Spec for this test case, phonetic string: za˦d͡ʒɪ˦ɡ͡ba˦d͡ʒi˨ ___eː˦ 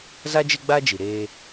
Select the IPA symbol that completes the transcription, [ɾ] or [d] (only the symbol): ɾ